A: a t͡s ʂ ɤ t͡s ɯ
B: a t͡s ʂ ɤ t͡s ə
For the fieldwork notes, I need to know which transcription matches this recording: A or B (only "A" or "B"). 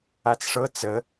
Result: B